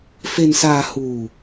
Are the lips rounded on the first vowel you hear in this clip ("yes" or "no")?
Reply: no